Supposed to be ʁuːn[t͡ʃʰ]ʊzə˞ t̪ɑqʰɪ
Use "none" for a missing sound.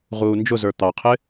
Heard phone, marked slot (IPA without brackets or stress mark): d͡ʒ